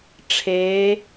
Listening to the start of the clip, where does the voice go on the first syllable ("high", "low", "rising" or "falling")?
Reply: rising